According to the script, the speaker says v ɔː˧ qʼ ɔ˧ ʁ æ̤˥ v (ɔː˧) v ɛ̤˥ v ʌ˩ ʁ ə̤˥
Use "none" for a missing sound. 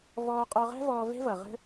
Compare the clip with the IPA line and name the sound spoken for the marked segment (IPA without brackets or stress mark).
ɔː˧